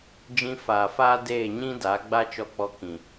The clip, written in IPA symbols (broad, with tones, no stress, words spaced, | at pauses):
d͡ʒĩ˧faː˨faː˦ deː˦˨ɲĩ˦da˨˦ ɡ͡ba˦t͡ʃɔ˧k͡pɔ˧ kĩ˨